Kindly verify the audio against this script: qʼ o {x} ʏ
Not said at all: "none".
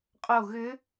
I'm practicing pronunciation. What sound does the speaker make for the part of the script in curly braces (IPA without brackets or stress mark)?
ɣ